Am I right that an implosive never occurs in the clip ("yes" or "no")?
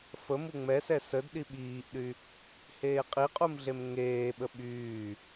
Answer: no